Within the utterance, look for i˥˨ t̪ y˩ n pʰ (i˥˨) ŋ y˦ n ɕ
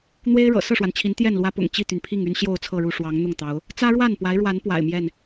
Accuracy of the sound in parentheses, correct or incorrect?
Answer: correct